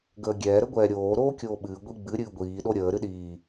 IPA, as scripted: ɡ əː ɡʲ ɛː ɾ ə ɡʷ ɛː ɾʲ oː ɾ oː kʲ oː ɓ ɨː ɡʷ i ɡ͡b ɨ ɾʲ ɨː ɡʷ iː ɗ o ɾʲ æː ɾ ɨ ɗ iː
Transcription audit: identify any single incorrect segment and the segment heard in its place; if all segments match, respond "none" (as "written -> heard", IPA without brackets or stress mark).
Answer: æː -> əː